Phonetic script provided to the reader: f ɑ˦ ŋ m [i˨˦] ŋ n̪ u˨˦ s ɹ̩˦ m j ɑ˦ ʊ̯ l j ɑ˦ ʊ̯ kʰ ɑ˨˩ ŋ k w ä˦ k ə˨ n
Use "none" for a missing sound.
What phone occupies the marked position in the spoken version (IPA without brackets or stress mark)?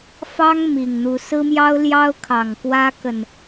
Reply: i˨˩